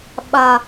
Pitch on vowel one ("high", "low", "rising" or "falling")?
low